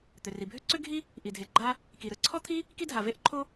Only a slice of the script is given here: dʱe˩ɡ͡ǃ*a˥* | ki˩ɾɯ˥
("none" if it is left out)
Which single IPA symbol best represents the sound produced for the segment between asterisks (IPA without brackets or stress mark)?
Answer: a˥